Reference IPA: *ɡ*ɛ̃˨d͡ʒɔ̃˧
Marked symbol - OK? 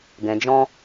yes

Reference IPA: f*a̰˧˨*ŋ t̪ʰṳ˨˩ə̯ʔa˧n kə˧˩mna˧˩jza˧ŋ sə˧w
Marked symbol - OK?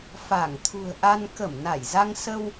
no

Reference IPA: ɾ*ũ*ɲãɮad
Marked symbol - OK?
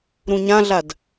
yes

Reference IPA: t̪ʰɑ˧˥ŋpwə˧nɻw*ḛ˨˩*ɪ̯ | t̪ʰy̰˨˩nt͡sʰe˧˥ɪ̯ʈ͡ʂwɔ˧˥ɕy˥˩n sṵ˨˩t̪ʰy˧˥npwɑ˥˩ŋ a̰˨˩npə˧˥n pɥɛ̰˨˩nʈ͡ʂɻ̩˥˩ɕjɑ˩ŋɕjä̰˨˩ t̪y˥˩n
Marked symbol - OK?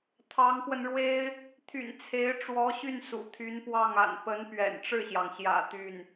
no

